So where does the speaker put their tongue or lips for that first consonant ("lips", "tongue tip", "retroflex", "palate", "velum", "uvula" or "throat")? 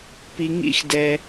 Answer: lips